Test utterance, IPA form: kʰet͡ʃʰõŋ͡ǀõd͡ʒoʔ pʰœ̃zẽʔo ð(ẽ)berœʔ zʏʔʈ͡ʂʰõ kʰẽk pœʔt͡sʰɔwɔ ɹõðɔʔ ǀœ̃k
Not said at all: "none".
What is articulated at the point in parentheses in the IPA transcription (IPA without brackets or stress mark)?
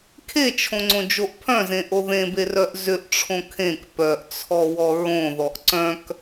ẽ